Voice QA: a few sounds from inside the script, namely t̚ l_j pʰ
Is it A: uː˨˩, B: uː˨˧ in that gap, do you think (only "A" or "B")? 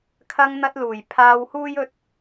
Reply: A